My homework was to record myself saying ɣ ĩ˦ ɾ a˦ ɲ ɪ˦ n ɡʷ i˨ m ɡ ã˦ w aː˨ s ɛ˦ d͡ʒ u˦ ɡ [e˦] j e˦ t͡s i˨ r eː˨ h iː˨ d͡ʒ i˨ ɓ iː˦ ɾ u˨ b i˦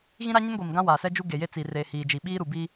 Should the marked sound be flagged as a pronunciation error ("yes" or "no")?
yes